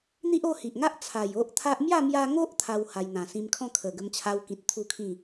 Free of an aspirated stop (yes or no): no